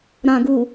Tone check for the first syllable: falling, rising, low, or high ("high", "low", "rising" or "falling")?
low